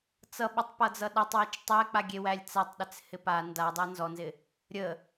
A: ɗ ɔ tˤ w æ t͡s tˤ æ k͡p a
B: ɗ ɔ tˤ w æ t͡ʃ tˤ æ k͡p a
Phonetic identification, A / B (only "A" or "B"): B